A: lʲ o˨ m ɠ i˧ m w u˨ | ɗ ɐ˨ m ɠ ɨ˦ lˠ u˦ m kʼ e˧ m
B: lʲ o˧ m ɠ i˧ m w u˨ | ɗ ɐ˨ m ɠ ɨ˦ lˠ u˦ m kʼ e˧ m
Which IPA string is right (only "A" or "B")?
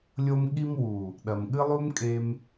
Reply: B